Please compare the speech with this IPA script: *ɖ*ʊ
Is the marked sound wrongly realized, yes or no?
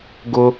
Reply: yes